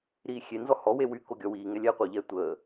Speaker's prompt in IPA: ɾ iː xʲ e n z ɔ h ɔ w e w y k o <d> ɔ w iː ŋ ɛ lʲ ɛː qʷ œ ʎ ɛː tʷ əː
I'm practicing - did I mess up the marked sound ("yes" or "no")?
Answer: yes